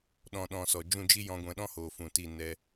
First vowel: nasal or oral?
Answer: nasal